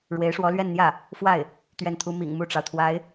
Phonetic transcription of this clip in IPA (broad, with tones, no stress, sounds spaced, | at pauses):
ɻ w e˧˥ ɪ̯ ʂ w ɔ˧˥ l ɥ ɛ˥˧ n n̪ j ä˥˩ | f w a˥˩ ɪ̯ | t̪ ɥ ɛ˥˩ n t̪ʰ u˥ m ḭ˨˩ ŋ m u˥˩ ʈ͡ʂ ɑ˩ ʊ̯ t̪ʰ w a˧˥ ɪ̯